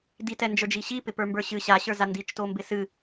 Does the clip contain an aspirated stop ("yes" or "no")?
no